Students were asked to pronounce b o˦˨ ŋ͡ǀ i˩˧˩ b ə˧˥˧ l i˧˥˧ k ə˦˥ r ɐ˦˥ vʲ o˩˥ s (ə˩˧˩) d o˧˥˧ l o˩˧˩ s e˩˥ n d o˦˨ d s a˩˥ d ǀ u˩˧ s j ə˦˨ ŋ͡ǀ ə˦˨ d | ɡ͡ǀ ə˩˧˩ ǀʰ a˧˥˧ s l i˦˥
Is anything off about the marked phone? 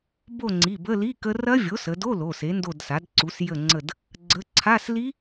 yes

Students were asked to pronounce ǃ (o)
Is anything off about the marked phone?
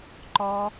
yes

